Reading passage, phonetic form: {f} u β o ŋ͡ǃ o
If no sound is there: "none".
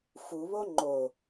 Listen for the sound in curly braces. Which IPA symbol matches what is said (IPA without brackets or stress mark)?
f